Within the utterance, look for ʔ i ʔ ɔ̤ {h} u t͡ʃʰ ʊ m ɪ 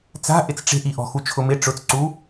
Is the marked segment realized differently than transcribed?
yes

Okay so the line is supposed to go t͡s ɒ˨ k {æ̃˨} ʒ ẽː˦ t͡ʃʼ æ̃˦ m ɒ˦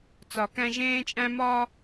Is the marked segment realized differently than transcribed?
yes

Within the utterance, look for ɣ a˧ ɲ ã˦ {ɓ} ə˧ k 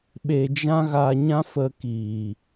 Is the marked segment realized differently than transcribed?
yes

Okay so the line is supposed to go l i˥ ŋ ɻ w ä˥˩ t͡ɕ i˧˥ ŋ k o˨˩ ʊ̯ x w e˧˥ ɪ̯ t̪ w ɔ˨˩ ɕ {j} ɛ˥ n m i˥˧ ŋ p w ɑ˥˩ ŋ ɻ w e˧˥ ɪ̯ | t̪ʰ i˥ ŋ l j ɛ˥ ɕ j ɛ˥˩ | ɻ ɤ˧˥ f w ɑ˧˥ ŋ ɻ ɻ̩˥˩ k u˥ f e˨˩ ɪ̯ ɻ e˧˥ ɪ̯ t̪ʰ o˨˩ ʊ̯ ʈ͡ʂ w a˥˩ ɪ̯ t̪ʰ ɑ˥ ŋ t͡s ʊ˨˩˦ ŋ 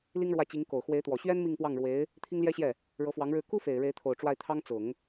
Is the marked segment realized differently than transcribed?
yes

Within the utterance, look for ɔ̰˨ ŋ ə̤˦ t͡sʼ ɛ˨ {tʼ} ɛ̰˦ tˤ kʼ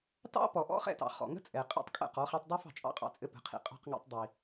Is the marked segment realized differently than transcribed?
yes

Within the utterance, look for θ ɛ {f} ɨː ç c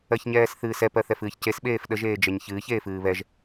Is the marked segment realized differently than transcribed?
no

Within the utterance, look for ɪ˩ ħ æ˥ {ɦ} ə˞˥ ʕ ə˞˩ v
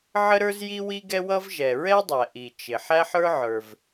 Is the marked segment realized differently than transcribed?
yes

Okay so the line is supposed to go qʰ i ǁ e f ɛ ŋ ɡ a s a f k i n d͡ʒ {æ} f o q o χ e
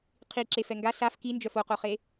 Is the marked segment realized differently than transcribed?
yes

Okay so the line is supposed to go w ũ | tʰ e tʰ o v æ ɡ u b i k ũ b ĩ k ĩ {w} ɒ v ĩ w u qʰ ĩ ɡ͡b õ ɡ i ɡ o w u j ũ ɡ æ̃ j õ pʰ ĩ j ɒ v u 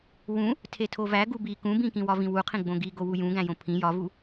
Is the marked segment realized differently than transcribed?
no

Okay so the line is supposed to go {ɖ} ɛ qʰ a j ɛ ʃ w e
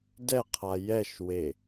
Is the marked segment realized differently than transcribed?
yes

